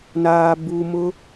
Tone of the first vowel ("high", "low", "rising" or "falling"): low